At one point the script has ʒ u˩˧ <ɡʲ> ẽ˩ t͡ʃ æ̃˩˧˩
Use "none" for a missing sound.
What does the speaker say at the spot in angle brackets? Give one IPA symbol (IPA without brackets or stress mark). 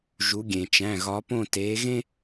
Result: ɡʲ